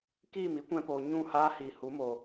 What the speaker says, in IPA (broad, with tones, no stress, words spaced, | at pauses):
kiː˦˨mi˦kʷɛ̃˧poː˨ ɲũ˦˨haː˦ hiː˨hu˨˦ mo˧